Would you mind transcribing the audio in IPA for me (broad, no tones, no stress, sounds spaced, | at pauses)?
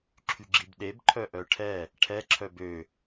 ǁʰ y ɡ͡ǁ i b ɗ e b ǃʰ œ ʔ œ ʈʰ ɛ | ʈʰ ɛ ǁʰ œ b ø